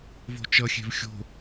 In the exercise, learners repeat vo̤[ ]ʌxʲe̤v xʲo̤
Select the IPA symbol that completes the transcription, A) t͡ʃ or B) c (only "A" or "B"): A